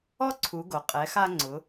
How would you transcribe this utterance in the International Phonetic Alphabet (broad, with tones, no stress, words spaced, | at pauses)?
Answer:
ɔ˥ǀʰu˩˧ɡo˩ qʼɛ˩˧xa˧ŋ͡ǀʊ˩˧